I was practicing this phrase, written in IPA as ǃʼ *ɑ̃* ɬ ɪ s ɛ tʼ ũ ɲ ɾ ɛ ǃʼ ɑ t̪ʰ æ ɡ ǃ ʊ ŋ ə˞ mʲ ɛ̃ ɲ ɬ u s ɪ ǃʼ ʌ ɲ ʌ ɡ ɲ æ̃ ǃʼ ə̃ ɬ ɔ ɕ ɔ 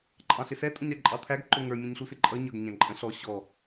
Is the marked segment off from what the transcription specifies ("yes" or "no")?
no